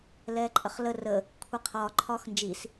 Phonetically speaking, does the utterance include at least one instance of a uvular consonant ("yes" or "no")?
yes